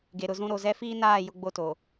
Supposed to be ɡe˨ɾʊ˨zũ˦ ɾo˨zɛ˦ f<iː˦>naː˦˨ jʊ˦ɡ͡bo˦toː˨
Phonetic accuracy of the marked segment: correct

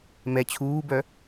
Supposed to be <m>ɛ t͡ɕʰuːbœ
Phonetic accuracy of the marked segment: correct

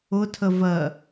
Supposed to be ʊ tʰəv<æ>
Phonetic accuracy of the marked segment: incorrect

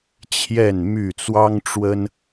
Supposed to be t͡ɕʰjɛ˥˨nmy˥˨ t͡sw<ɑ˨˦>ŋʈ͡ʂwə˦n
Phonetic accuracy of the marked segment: incorrect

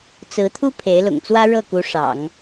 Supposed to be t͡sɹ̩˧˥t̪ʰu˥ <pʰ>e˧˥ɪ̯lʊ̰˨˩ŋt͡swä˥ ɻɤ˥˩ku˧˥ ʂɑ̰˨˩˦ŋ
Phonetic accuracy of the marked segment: correct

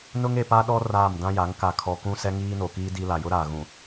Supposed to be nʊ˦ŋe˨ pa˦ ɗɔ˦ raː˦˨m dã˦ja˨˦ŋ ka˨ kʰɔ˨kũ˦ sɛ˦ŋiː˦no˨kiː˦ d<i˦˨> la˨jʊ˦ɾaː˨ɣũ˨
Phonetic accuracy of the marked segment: incorrect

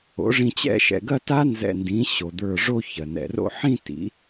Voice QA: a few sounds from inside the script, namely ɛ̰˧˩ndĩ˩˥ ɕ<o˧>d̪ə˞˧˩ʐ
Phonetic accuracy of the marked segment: incorrect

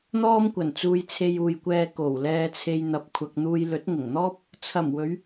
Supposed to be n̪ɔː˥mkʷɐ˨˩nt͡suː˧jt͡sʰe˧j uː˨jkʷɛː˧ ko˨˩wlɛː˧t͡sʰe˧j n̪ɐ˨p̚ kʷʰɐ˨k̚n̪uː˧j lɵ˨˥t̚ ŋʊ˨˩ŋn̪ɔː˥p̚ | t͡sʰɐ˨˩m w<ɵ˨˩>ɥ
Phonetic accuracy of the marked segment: incorrect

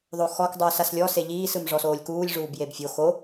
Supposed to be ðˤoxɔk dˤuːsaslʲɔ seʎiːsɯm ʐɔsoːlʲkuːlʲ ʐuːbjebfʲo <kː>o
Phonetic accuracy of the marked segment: incorrect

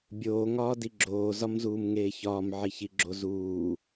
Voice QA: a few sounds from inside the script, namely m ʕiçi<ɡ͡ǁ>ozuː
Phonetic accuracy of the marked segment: correct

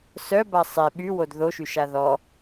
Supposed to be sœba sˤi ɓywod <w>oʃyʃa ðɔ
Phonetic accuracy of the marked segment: incorrect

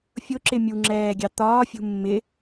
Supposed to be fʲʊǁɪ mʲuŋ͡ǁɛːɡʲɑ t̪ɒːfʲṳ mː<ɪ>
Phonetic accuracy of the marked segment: correct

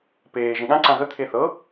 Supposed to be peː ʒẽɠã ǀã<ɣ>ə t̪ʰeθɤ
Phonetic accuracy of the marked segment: correct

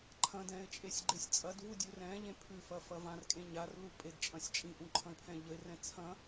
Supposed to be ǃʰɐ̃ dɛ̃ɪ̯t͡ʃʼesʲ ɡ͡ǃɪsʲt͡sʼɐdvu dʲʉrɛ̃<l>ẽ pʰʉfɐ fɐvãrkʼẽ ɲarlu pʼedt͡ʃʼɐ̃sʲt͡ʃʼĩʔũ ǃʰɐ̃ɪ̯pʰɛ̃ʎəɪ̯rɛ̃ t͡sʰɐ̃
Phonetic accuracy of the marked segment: incorrect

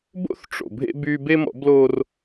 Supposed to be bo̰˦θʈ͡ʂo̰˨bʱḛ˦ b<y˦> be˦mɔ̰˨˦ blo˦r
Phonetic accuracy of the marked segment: correct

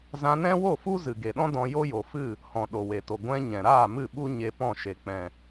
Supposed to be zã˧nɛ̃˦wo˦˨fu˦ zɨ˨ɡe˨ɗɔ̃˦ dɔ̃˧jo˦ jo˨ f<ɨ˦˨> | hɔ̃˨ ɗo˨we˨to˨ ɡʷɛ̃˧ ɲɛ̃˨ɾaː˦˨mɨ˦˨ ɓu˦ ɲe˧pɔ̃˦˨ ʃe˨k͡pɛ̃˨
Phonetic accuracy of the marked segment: correct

